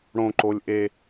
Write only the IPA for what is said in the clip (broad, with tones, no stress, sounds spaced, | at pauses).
ɽ õ˧ ǃ o˧ lʲ ʔ e˧